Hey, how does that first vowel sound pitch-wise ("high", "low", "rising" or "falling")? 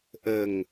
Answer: low